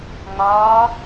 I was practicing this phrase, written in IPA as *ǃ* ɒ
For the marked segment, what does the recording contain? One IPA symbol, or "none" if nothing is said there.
ŋ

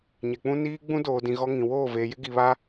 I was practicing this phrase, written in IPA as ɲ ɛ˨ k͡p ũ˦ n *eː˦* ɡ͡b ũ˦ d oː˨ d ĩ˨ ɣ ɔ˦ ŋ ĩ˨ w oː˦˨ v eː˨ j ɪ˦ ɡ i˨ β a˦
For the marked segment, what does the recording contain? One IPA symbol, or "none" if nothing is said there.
iː˦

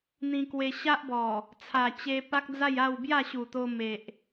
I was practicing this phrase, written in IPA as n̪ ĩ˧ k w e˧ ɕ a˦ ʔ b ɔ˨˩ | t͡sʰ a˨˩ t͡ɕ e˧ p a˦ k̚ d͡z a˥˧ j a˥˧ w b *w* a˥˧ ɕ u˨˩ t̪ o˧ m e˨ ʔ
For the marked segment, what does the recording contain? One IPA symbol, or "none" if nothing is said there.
j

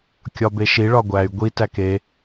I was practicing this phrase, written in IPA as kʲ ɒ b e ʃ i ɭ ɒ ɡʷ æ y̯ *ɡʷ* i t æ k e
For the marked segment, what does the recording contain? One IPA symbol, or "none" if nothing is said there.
ɡʷ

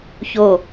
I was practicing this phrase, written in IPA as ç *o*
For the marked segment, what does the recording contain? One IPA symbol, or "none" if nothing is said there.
o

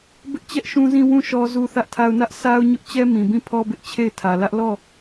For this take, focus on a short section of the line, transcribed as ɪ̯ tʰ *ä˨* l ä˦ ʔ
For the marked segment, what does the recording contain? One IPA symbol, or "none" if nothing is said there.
ä˨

